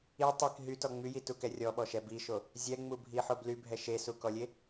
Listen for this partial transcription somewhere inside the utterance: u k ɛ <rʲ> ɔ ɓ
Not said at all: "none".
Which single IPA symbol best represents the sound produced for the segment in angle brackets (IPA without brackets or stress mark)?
rʲ